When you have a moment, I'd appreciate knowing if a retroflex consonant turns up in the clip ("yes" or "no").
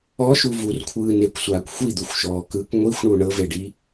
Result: yes